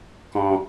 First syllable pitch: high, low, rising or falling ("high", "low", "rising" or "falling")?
low